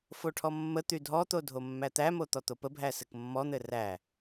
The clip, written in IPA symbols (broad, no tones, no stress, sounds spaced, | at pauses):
f o ʈʰ ɔ mː ə t̪ y dʱ ɔ t̪ o dʱ o mː æ t̪ æ m o t̪ ɔ t̪ o p ə bʱ æ s ɘ k mː ɔ n̪ ɘ r æ